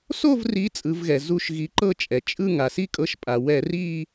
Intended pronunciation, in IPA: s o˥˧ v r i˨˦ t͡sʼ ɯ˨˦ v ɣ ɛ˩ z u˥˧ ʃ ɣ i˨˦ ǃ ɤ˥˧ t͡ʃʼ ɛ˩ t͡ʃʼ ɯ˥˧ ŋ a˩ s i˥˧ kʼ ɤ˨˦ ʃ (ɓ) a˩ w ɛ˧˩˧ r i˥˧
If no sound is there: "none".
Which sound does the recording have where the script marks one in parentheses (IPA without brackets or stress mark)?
pʼ